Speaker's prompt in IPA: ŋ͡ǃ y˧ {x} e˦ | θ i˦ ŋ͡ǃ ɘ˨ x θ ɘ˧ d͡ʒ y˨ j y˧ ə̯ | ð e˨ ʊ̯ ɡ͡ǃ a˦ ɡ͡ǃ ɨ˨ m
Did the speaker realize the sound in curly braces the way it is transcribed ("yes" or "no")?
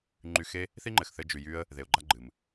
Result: yes